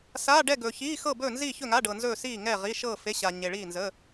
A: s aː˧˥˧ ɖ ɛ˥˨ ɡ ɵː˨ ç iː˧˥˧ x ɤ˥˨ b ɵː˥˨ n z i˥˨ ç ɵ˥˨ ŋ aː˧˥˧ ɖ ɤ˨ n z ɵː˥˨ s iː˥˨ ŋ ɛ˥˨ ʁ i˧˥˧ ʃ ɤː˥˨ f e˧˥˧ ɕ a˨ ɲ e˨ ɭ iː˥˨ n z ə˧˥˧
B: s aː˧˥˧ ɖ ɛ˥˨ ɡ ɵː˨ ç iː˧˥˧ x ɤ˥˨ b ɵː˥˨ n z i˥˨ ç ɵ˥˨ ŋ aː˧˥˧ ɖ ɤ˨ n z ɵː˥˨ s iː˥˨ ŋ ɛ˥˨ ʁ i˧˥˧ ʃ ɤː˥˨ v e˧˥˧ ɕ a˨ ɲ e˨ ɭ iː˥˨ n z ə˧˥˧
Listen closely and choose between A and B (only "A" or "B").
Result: A